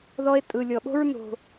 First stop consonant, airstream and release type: ejective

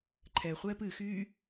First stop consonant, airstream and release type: click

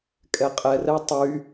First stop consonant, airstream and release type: ejective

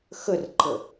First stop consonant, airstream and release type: click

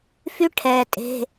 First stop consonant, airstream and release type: aspirated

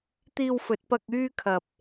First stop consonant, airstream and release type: plain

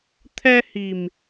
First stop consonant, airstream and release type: aspirated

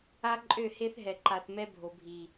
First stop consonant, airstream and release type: click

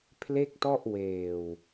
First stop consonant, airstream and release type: aspirated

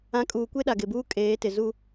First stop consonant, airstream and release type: ejective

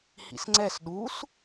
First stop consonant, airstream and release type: click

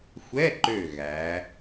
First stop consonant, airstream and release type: click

